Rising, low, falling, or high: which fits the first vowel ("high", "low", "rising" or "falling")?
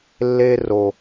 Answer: high